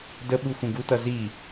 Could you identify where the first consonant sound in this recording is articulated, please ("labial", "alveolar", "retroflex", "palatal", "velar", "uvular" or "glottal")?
alveolar